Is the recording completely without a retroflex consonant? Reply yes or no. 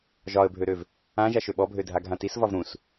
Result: yes